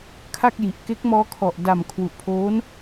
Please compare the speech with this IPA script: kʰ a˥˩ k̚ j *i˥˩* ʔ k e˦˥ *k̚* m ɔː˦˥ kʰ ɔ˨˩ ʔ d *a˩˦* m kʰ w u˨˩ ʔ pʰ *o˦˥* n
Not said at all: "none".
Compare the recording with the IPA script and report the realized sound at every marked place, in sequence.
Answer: i˨˩, k̚, a˨˩, oː˦˥

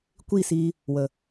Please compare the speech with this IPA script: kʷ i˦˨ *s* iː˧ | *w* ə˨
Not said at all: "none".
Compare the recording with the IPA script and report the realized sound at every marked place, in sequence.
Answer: s, w

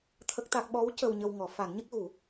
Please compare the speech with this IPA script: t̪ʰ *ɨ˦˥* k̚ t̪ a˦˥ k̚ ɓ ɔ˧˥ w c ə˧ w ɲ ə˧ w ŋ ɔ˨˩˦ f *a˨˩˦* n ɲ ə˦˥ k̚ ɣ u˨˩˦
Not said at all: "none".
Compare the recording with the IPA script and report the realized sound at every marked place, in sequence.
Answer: ə˦˥, a˨˩˦

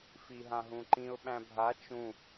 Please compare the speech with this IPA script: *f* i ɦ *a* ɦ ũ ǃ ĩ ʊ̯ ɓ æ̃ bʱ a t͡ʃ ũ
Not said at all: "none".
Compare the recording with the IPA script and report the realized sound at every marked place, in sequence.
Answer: f, ã

